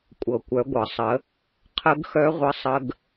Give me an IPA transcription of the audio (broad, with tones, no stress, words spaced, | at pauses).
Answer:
kʷʼɤ˩kʷœ˩˧ɡʷɤ˩sˤə˩˧ | qʰə˧˥ɡxœ˧˥ʁʷə˧sˤə˧ɡ